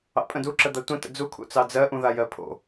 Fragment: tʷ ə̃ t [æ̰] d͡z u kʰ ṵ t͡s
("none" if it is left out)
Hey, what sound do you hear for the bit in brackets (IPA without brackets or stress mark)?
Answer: ə̰